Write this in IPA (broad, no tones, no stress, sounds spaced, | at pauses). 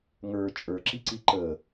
ŋ ə˞ t͡ʃʼ ə˞ ǁ i ǀ i ǃ ə